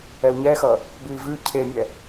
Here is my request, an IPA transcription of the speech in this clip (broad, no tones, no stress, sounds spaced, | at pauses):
ɛ u̯ ɲ ɛ x ʌ | b ʉ i̯ v ʉ cʰ e mʲ ɛ